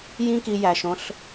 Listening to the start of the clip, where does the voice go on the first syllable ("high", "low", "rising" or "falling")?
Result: high